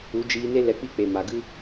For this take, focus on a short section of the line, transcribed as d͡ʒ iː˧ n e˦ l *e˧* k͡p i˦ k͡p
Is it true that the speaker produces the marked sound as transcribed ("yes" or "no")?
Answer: no